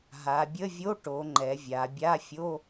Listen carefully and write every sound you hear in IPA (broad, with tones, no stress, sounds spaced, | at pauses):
ɦ a˩˧ bʲ ə˧˥˧ vʲ o˧˥˧ ʈ o˩˧ ŋ͡ǃ ɛ˩˧ vʲ a˩˧ bʲ a˧˥˧ fʲ o˧˥˧